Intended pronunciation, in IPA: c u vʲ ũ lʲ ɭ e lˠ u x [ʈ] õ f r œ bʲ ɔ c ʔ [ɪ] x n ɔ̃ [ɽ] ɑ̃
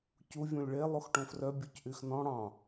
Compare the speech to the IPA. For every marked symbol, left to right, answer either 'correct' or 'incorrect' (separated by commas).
correct, incorrect, correct